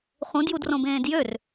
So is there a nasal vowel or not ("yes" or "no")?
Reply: yes